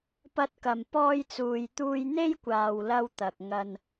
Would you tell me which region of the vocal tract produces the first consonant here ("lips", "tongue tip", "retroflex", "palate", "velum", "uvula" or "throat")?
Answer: lips